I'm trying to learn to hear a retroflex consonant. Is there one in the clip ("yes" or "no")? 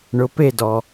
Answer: yes